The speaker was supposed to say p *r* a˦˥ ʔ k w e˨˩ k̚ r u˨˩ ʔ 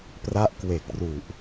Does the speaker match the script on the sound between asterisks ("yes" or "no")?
yes